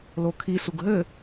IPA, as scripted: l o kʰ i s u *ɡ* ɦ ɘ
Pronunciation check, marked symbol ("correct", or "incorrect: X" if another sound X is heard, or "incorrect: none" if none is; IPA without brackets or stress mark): correct